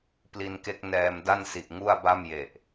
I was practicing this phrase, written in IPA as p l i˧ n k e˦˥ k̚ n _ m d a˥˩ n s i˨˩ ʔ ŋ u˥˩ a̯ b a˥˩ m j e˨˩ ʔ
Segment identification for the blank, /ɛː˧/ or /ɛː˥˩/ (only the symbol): ɛː˧